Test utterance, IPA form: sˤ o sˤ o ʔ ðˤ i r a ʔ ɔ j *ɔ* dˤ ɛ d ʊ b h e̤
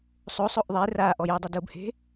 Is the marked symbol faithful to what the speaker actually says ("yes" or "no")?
no